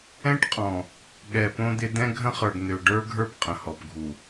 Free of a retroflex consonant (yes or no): no